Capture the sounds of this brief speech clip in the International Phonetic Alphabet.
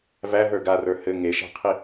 v æ ɦ ə˞ ɡ a r ə˞ h ɘ ŋ e ʃ æ̤ qʰ i

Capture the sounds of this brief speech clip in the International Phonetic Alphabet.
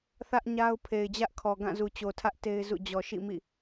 θ ä˦ ʔ ɲ a˦ ʊ̯ pʰ e˨ ɪ̯ d͡ʑ ä˦ ʔ kʰ ɔ˨ ɡ ã˦˨ z u˨ t͡ɕ o˨ tʰ ä˦ ʔ t e˦ ɪ̯ z ṵ˦˨ d͡ʑ ɔ˨ ʃ ḭ˦˨ m ḭ˦˨

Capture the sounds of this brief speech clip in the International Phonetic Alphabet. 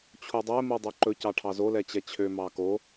t͡ɕʰ u dˤ ɛ m u dˤ e ǃ ɵ c ɑ ʈʰ ɑ z o l ɛ t͡ɕ ɛ t͡ɕʰ ø m ɑ k o

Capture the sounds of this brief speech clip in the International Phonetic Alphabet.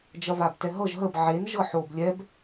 d͡ʒ ɐ v a b t ɛ ɦ ɤ ʒ ɦ ə b ʕ e n ʒ ɤ ħ o b lʲ ɛ b

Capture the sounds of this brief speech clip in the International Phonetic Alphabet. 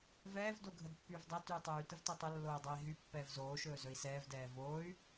v ɛː v d o ɡʱ ə d pː yː v dˤ ɛ t y u̯ tˤ yː t ə v t ɛ tˤ ə lː oː dˤ ɵ i̯ ɦ y pː ɛː v z oː ʃ ɵː z ɵ i̯ s ɛː v d ɛː v oː y̯

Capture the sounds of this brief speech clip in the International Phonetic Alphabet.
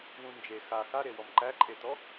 w ũ n d͡ʒ e x a x a ɾ e w ɔ m ǃ æ ǃʼ e t ɔ

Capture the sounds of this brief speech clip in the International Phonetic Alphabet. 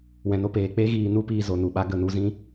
w ɛ̃˨ n o˧ p eː˨ k͡p e˦ ɣ iː˧ n u˦ p iː˧ z o˨ n u˨ ɓ a˧ ɡ ə˦˨ n u˨˦ z ĩ˦

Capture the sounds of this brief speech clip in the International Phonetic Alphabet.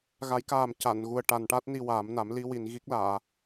ɣ a˨˩˦ j k aː˨˩ m c a˨˩˨ n ɣ u˨˩ ə̯ ʈ a˨˩ n ʈ a˦˥ t̚ n i˧ w aː˨˩˦ m n a˨˩˦ m l i˧ w i˨˩ n ɣ i˦˥ k̚ l aː˨˩˨

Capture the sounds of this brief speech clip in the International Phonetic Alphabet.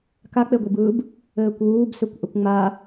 k a k͡p e ɡʷ i b ɯː b | ɘː kʷ w uː b s ø kʷ ʔ ə kʷ ŋ͡m a

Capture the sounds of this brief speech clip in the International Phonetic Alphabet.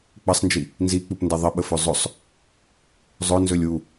k͡p ə sˤ n d͡ʒ i | n z i k͡p u p n d a ðˤ ə ɓ ə f ɵ zˤ ɵ sˤ | zˤ ɵ n z ɵ lʲ w u

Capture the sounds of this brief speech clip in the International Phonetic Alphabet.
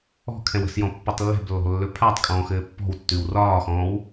ɔ̤ kʰ ɛ̃ w ə̤ s j ɔ̃ pː ɛ tˤ lː ɛ̤ b lː ɔ̤ lː ɵ pʰ a tˤ kʼ ɔ̃ː x ɘː pː ɔ̤ w tː ʉː w r ɒː x ɔ̃ː w

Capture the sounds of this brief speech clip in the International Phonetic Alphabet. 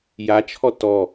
j a t͡ʃʰ ɔ t ɔ

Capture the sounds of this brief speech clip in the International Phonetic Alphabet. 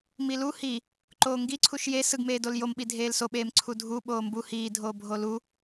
m i l u h i | ǃ oː ŋ ɡ i ǀʰ u ʃ j e s ɯ ɡ m eː d o l j o m ɓ i dʱ eː l s o ɓ eː m ǀʰ u dʱ u ɓ oː m b u h iː dʱ oː bʱ o l u

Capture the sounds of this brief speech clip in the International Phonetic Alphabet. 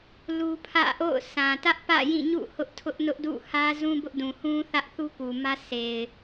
l u˦ pʰ ä̰˦˨ ʔ o̰˦˨ ʊ̯ sʰ ã˨ t ä˦ ʔ p ä̰˦˨ j ĩ˦˨ ɲ ṵ˦˨ h ʊ˦ ʔ tʰ ʊ˦ ʔ n ʊ˦ ʔ d ṵ˦˨ h ä˦ z ũ˦ b ʊ˦ ʔ d ũ˨ h ũ˦ θ ä˦ ʔ θ u˦ k u˨ m ä˦ s e˨ ɪ̯

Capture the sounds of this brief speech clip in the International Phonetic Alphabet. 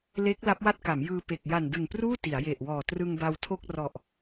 l e˦˥ k̚ l a˦˥ p̚ w a˥˩ t̚ k a˩˦ m j ɯː˧ p e˨˩ k̚ j a˨˩ n d ɯ˨˩ ŋ p r uː˥˩ t i˩˦ a̯ j e˨˩ ʔ w ɔː˨˩ t r ɯ˧ ŋ b a˧ w tʰ o˥˩ k̚ r ɔ˨˩ ʔ

